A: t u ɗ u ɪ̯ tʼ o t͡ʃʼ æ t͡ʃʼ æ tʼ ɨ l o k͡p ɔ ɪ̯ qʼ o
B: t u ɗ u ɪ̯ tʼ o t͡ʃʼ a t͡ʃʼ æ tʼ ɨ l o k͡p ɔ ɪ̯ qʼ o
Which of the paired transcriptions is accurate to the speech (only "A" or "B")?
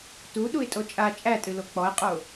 B